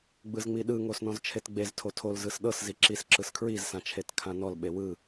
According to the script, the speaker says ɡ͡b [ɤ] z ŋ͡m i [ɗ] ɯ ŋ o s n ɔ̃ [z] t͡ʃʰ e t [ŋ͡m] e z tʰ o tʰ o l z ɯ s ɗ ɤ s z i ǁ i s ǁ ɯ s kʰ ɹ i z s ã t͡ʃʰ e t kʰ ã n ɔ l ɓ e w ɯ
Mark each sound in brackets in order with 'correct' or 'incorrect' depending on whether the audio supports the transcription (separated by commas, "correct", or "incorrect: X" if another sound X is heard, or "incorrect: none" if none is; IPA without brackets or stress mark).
incorrect: ɯ, correct, correct, incorrect: ɡ͡b